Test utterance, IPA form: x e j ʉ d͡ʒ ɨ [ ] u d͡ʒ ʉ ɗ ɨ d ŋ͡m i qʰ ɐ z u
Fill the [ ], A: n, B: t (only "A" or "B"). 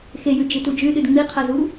B